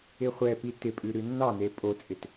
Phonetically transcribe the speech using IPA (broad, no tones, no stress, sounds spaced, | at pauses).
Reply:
ɪ χʷ ɛ p i t ɪ pʼ ʉ ɾ ʉ nː ɑ n e pʼ o t͡sʼ ɪ t